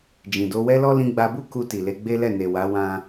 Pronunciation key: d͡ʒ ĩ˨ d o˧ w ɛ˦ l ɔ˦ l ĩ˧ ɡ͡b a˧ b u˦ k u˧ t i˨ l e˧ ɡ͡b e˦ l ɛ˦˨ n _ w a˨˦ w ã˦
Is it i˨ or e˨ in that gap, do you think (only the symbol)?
e˨